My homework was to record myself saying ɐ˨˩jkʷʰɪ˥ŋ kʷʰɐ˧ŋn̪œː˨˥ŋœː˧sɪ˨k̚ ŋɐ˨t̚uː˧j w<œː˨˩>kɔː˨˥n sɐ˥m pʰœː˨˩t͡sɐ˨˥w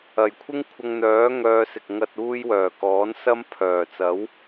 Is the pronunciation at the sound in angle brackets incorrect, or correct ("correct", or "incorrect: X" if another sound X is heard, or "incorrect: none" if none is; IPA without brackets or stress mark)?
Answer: correct